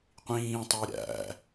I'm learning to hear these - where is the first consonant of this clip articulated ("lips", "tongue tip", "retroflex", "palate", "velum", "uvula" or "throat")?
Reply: uvula